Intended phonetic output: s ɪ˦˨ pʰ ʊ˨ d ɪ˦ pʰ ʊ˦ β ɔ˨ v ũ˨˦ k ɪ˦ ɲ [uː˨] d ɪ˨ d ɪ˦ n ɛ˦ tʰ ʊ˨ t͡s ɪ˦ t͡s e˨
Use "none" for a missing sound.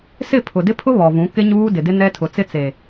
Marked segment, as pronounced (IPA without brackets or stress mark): uː˦